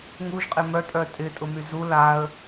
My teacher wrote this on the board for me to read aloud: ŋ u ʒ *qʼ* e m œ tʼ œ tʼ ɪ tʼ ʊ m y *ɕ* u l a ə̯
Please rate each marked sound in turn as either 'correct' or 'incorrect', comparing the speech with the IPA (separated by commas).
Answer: correct, incorrect